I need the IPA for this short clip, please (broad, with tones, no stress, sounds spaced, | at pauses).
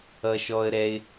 ʌ˧ ʃ ɔ˧ ə̯ ɾ ɛ˧ ɪ̯